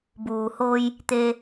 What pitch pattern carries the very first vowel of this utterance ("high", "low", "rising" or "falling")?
low